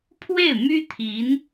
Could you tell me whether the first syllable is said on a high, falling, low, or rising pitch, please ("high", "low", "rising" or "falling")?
falling